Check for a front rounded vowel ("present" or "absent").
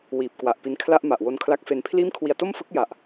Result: absent